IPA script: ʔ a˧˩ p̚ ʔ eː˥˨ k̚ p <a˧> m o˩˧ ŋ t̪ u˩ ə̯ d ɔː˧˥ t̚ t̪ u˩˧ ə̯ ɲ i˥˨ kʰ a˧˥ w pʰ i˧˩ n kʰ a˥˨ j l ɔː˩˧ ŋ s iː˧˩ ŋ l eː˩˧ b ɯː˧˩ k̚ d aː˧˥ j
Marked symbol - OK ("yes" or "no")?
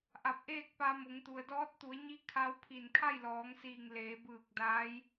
yes